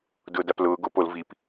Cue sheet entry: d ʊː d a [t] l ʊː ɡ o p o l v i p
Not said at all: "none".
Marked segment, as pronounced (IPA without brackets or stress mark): p